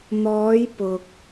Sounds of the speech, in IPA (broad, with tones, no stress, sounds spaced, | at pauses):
n̪ ɔː˨˧ j p ʊ˨ k̚